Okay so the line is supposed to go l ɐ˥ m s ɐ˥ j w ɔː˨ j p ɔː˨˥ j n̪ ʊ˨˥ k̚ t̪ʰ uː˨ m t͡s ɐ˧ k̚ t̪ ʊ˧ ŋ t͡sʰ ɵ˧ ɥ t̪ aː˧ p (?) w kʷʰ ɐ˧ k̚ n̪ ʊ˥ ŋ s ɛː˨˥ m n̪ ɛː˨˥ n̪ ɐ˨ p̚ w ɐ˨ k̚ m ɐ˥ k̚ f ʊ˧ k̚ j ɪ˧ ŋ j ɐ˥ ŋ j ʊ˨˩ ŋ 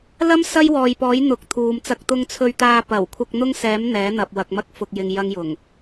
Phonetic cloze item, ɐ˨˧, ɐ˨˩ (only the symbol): ɐ˨˩